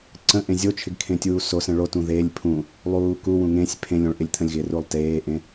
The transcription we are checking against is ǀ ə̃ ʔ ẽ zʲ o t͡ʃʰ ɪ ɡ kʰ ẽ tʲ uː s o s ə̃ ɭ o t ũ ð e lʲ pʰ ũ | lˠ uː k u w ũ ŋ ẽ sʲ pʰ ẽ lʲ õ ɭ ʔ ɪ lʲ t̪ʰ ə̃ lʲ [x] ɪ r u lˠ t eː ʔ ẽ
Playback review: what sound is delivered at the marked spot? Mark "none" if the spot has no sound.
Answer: ɣ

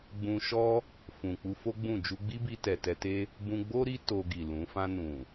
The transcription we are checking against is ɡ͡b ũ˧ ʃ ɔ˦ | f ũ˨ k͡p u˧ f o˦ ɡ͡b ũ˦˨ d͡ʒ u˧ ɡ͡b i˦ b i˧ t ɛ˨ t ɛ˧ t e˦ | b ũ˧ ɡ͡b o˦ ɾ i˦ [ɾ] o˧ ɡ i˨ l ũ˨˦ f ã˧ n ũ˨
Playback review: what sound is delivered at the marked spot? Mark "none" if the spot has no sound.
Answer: t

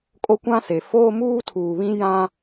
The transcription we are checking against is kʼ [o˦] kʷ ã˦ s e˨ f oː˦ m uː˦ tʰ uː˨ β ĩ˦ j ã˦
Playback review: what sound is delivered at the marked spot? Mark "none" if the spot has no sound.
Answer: o˦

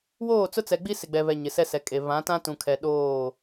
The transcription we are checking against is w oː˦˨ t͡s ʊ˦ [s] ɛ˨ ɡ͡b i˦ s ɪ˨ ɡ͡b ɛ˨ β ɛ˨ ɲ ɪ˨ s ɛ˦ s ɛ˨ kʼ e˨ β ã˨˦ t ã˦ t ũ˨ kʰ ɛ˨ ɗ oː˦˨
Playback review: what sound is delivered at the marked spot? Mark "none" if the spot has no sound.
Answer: t͡s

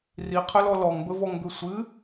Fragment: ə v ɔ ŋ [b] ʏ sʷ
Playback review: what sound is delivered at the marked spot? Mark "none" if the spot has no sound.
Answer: b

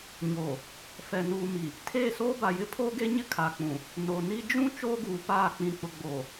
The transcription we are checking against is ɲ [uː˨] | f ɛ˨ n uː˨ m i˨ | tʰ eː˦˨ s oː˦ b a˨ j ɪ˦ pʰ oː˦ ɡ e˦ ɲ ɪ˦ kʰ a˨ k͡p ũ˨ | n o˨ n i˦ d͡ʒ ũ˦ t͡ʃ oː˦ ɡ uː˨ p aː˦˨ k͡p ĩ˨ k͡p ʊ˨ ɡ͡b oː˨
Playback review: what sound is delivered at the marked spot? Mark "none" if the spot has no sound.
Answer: oː˨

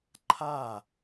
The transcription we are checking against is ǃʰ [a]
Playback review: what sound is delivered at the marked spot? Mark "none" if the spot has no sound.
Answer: a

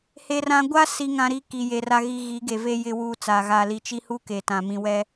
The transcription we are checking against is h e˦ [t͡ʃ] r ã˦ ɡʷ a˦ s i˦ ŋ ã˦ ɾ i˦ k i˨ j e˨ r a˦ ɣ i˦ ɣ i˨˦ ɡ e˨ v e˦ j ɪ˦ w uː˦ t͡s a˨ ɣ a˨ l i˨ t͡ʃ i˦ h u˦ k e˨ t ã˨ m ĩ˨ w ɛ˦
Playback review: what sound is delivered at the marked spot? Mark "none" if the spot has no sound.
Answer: none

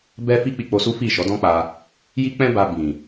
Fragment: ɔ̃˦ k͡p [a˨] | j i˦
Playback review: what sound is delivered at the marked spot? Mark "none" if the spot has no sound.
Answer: a˧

